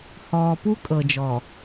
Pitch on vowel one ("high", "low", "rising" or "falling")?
low